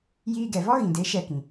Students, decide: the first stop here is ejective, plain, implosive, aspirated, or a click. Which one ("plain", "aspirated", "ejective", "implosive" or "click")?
plain